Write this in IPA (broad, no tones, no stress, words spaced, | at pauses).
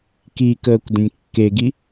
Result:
kikəːkʷ də̃nʲkːeɡi